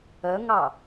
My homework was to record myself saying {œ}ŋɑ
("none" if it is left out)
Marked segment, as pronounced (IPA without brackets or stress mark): œ